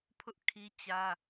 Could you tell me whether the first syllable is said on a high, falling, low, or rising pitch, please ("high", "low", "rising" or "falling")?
high